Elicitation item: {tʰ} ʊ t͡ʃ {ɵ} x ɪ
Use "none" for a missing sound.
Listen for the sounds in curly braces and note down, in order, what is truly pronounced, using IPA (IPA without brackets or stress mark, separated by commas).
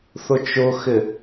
θ, ʊ